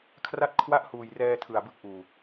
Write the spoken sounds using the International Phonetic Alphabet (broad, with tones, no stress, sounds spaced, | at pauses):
kʰ r a˥˩ t̚ kʰ w a˥˩ ʔ h uː˨˩ j r ɛː˧ tʰ ɯ˨˩ a̯ b ɯ˦˥ k̚ ʔ uː˨˩